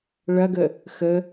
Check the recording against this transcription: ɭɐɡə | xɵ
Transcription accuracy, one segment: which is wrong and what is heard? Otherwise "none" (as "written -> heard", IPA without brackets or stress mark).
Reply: ɵ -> ə